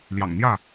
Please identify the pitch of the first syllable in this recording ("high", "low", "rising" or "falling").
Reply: low